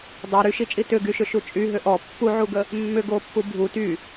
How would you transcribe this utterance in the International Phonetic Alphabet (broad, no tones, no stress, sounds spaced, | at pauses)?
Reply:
dˤ a ɾ y ʃ i t͡ʃʼ i t ʏ ɡ y ʃ ʏ ʃ u t͡ʃʼ y ɦ ʏ ʔ ɔ pː u ʕ u ɡ ə | mː ʏ ɡ o pː u bʱ u t y